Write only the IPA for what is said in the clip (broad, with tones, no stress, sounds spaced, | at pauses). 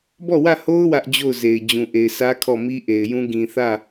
b ɔ˦˨ w ä˦˨ h o˦ ʊ̯ w ä˦ ʔ d͡ʑ o˦˨ ʊ̯ z e˨ ɪ̯ d͡ʑ ũ˨ ʔ e˨ ɪ̯ s ä˦ kʰ ɔ˦˨ m i˦ ʔ e˨ ɪ̯ j ũ˦ ɡ ĩ˨ θ ä˦˨